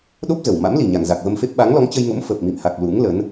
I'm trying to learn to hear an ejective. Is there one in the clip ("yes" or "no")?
no